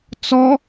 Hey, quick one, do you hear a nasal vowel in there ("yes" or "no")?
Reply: no